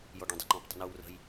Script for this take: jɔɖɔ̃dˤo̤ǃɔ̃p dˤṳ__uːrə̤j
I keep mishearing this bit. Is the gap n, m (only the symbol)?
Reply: n